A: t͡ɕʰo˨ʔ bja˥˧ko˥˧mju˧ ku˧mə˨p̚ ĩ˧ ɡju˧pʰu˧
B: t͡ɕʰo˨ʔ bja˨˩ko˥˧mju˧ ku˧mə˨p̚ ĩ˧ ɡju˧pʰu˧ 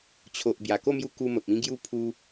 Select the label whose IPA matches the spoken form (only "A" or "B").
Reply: B